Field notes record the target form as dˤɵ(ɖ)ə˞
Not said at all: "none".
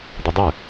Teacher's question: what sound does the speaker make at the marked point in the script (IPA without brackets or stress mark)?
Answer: dˤ